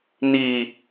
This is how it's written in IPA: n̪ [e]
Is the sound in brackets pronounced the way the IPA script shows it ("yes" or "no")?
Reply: no